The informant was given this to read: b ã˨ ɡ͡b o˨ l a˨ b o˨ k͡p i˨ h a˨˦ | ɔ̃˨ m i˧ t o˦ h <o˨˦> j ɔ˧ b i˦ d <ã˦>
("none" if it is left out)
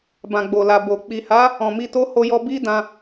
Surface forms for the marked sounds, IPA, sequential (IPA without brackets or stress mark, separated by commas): o˧, ã˧